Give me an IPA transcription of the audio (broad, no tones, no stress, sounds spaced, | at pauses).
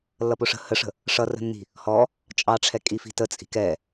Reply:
lː ʌ p ʊ ʂ ə̤ h ə ʂ ə̤ | ʂ ʌ r ə̤ nː i̤ | h ɔ | t͡ʃʼ ɑ ʈ͡ʂʰ ɛ kʼ i f i̤ t ə t͡sʼ i̤ k ɛ